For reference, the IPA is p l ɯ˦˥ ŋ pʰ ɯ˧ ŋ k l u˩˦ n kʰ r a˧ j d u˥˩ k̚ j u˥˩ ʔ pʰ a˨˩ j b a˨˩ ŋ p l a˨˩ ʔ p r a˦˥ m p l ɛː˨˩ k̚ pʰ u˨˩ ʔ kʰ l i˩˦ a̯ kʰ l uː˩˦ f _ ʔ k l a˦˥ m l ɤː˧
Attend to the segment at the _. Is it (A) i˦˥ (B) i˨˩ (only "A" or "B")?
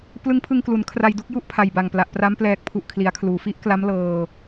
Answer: A